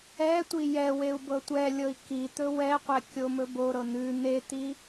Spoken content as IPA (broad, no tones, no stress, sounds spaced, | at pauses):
ɛ tʷ i j ɛ w e u̯ b ɤ tʷ ɛ lʲ ɤ i̯ k i t̪ ɵ w ɛ qʷ ɛ kʲ o m ɵ b o ɾ ɤ n̪ ʉ n̪ e t̪ i